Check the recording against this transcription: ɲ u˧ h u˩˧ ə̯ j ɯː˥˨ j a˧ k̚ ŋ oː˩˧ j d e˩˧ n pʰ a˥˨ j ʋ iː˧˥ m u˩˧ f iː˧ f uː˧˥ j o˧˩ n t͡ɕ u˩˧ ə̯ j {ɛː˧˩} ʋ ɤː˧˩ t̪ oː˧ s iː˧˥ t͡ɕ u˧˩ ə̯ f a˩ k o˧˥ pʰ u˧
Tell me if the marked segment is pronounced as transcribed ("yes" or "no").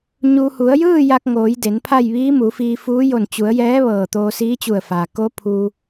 no